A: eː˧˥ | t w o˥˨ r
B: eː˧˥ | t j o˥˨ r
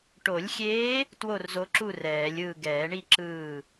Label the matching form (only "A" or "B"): A